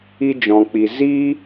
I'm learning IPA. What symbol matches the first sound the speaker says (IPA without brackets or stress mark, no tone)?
i